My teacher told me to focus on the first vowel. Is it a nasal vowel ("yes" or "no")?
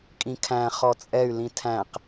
yes